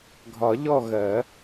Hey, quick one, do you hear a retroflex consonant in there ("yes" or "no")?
no